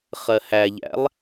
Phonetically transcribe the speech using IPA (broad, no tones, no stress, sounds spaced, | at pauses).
χ ɜ h æ ʎ æ̰ lˠ